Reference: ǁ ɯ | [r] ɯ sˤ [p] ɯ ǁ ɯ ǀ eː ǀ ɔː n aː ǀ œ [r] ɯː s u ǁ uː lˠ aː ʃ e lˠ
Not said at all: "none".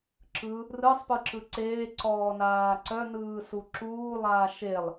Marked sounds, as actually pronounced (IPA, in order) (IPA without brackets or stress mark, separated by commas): r, p, n